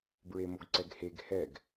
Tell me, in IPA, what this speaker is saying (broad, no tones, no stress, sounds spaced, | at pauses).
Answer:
b ɹ e m o ɡ ǀ ɛ ɡ h e ɡ h ɛ ɡ